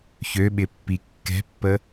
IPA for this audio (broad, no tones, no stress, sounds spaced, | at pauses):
ç ø ɓ ɪ pː i kː ɛ̤ pː ə